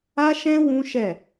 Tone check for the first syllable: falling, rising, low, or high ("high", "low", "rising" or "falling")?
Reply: high